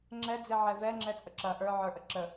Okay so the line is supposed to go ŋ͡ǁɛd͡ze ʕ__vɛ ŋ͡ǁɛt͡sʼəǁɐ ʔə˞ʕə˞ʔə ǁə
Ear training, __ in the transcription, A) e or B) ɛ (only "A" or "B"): B